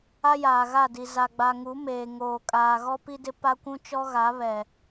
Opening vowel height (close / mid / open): open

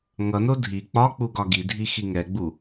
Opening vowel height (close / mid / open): mid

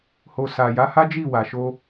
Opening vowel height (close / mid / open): mid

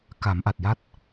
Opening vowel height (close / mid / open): open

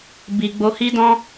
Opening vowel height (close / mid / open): close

